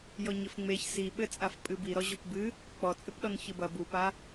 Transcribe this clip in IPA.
jɔɲɘfŋ͡meç si ɓɘt͡sʼafpʼɨbi ɾɔʑopbɨ | k͡pɔt͡sʼɨpɗɔn çɨbɐ bupa

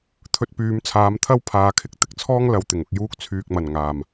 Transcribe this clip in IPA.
t̪ʰɵ˧t̚pyː˨˧m t͡sʰaː˨˧mt̪ʰɐ˥wpʰaː˨˧kʰɪ˨k̚ t̪ɪ˨k̚t͡sʰɔː˥ŋ lɐ˨˧wt̪ɪ˨˩ŋ ʊ˧k̚juː˥k̚ t͡sʰyː˨k̚mɐ˨˩n ŋaː˨˩m

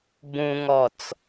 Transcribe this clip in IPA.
bũŋɔt͡s

